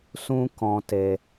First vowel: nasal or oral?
nasal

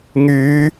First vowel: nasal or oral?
oral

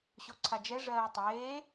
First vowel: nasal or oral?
oral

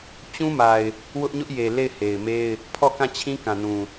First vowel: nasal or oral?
nasal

